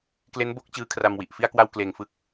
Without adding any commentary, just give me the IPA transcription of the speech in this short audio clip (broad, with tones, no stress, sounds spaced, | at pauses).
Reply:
k l e˦˥ n b o˦˥ k̚ t͡ɕ ɯː˦˥ kʰ r a˧ m w i˨˩ ʔ f i˥˩ a̯ k w a˥˩ w k l eː˨˩ ŋ f ɯ˦˥ k̚